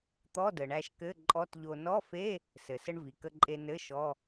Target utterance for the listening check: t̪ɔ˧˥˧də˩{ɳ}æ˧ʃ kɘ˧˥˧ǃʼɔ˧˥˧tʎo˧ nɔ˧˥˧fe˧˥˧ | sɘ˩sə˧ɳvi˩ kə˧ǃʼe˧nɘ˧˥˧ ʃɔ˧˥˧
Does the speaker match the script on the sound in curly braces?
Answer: yes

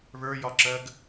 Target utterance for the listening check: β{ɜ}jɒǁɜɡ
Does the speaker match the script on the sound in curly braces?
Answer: no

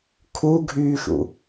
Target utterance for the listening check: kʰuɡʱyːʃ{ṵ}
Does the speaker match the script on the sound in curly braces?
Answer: yes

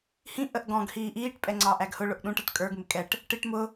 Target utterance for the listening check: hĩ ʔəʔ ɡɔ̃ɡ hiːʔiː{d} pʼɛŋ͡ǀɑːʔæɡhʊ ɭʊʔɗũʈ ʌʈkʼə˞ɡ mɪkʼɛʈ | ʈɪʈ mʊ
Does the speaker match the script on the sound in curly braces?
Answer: no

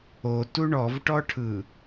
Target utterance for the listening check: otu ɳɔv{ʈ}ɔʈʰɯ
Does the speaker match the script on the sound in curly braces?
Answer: yes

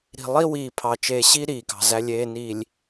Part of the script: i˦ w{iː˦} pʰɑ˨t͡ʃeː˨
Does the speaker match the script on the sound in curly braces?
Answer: no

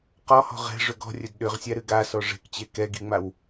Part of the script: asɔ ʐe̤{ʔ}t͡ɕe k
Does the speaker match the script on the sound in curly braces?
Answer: no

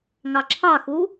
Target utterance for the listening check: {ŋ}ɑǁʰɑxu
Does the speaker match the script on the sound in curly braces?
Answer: yes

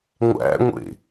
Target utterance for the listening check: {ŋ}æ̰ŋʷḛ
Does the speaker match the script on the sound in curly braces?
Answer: no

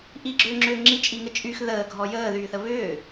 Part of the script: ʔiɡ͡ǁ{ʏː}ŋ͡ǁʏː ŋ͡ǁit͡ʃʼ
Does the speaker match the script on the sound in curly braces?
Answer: yes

